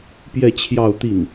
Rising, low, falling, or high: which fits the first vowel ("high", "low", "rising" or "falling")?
falling